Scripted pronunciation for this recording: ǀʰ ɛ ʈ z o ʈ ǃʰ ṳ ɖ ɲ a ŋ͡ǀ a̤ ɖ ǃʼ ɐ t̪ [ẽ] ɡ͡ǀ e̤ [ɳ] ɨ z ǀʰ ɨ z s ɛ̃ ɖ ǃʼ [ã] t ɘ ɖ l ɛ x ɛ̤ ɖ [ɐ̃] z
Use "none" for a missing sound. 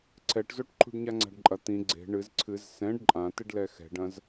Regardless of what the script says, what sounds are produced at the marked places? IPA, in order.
ĩ, ɳ, ã, ɐ̃

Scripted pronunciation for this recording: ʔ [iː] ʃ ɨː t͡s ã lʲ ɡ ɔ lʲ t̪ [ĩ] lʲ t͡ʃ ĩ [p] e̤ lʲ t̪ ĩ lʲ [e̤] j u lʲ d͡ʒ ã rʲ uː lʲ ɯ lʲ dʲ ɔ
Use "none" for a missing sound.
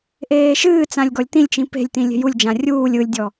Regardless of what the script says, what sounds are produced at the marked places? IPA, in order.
eː, ĩ, p, e̤

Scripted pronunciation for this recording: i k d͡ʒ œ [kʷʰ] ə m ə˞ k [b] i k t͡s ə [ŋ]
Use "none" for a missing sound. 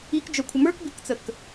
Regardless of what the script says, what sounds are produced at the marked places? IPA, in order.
kʷʰ, b, k

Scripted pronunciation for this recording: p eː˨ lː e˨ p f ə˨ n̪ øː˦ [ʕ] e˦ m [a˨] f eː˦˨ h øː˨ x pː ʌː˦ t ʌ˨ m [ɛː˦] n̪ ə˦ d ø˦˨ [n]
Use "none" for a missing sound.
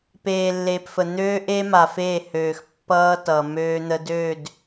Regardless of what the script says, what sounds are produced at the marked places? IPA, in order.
ʔ, a˨, øː˦, d

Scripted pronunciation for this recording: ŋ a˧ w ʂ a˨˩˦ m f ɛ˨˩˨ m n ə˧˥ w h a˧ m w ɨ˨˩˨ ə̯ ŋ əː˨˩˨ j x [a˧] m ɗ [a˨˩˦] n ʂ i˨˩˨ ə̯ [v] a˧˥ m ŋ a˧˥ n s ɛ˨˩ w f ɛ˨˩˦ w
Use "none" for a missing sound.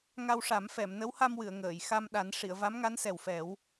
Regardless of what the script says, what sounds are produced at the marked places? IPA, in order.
a˧, a˨˩˦, v

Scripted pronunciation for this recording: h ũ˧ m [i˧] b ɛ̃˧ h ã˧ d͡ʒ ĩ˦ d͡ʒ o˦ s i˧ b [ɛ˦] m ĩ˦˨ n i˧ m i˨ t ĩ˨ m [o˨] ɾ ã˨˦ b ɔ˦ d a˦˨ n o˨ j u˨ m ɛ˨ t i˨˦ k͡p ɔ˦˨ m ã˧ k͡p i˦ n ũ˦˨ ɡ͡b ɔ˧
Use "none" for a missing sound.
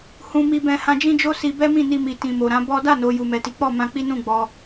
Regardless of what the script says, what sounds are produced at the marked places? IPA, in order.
i˧, ɛ˦, o˨

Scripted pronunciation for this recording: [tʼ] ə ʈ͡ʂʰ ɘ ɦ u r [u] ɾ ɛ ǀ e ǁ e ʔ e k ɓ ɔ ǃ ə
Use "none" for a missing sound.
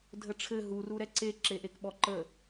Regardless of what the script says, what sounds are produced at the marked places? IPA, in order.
dʱ, u

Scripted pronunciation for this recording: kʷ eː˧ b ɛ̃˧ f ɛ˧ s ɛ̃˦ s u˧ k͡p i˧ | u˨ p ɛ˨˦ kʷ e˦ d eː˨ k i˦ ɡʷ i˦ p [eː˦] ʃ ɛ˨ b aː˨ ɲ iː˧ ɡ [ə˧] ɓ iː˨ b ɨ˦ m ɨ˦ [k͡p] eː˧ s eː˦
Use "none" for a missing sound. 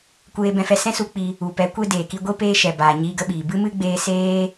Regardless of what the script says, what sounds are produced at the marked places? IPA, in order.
eː˦, ə˧, ɡ͡b

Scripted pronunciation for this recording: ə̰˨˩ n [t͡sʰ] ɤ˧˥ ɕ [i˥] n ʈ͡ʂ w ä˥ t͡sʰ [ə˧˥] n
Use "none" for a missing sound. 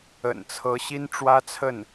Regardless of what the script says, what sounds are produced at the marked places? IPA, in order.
t͡sʰ, i˥, ə˥˩

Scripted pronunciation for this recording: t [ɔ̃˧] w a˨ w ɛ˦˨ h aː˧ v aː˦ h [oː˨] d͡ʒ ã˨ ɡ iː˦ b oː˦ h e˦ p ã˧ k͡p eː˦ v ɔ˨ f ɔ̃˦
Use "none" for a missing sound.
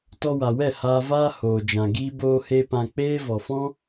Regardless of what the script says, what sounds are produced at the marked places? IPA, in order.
ɔ˧, oː˨

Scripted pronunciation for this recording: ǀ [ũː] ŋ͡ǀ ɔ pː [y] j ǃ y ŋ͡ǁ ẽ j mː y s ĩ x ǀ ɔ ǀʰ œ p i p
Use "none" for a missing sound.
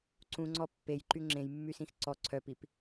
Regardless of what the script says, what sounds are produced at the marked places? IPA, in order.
ũ, e

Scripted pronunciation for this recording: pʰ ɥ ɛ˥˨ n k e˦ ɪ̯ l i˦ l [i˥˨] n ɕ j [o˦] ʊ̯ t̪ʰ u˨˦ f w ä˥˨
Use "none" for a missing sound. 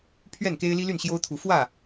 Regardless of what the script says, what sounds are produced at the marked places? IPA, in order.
y˥˨, o˦

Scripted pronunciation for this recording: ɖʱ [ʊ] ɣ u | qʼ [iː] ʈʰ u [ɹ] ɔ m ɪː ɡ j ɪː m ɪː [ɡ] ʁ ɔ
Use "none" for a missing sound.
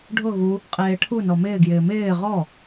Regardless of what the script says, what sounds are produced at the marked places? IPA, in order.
ʊ, eː, n, none

